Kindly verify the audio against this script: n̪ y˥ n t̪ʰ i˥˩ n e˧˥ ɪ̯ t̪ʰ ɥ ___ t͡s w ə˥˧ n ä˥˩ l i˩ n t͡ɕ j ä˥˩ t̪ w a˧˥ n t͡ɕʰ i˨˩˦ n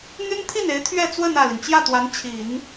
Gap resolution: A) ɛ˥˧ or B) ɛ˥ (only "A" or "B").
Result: A